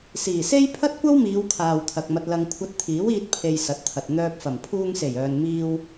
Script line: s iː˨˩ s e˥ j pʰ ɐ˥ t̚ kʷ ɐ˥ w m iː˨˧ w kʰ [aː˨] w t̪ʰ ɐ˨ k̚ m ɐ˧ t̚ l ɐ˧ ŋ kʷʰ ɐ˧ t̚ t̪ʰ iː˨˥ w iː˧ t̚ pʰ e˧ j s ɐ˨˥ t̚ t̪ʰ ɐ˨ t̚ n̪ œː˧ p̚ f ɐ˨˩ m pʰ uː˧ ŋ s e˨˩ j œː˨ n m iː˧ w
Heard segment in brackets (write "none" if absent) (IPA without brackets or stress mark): aː˨